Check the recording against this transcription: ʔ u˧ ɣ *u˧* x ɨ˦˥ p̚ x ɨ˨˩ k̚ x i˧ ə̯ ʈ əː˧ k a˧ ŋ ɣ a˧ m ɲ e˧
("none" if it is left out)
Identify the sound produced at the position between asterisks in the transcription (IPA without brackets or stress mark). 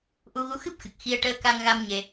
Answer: u˧˥